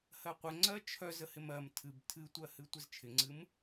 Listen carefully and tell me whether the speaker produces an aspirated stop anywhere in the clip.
yes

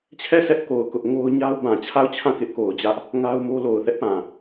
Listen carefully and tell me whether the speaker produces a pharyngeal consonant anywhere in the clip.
no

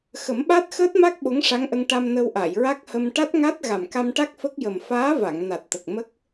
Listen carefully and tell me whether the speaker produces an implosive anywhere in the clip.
yes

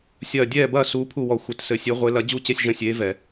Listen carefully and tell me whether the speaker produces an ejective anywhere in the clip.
no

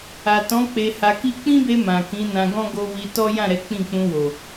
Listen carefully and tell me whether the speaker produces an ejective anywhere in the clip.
no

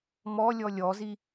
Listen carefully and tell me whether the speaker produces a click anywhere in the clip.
no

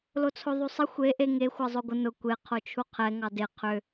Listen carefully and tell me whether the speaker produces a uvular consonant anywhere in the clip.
yes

